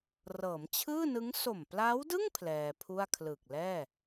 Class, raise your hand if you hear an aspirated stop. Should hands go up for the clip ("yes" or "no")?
yes